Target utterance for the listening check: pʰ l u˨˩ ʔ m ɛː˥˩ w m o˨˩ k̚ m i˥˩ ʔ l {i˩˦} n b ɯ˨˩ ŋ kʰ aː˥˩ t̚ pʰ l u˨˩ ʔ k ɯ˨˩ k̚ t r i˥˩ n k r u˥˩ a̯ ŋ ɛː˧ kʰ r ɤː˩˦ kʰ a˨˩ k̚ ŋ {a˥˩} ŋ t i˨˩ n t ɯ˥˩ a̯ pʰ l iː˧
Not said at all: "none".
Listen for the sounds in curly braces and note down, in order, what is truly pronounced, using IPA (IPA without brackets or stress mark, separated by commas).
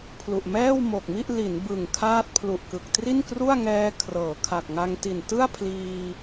i˩˦, a˧